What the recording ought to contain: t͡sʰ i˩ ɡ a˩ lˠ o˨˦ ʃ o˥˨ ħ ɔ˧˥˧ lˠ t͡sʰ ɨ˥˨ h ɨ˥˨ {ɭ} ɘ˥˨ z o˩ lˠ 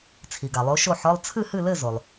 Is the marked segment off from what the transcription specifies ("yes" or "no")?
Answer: yes